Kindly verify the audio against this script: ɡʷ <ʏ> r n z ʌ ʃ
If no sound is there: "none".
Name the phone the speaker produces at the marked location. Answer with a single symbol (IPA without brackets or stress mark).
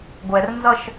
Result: ɛ